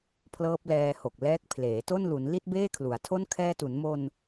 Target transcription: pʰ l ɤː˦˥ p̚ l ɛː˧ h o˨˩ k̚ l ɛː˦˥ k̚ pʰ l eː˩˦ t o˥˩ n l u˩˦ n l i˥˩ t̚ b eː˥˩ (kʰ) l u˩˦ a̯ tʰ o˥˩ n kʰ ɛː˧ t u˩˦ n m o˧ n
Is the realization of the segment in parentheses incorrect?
no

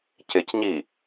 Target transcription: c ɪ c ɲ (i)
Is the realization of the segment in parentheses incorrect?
no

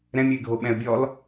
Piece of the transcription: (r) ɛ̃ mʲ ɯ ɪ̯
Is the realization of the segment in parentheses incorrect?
yes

